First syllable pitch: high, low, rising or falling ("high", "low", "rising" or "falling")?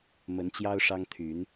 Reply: rising